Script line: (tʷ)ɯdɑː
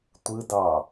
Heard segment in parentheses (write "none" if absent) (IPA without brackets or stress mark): tʷ